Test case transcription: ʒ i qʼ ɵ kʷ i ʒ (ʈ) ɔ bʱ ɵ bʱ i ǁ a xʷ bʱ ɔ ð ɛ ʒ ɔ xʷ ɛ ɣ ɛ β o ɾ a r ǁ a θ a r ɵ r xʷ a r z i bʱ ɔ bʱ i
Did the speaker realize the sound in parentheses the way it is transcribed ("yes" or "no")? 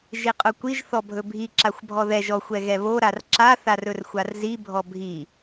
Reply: no